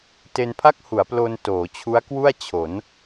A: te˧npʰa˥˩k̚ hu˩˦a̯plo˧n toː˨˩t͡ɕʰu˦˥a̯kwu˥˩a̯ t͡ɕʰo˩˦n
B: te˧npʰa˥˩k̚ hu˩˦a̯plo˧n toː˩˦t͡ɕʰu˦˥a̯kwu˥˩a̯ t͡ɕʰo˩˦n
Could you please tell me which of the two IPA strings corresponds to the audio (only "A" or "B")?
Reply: B